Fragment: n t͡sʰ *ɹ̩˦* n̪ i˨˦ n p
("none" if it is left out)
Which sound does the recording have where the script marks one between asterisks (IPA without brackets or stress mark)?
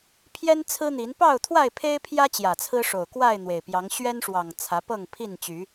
ɹ̩˦